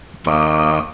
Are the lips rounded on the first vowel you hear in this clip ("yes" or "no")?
no